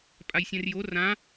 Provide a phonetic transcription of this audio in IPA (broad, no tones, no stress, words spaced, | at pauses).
pʼajsʲɛ̃rjo rã